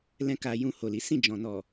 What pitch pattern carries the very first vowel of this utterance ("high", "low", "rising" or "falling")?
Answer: high